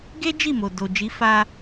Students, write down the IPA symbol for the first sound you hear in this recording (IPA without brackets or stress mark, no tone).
ɡ